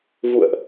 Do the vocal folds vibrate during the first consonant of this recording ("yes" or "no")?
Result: yes